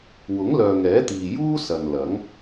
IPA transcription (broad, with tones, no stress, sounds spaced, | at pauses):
w ʊ˨˥ ŋ l œː˨ ŋ ɛː˨˥ t̪ iː˨ j uː˥ s ɐ˨ n l ɐ˨˥ ŋ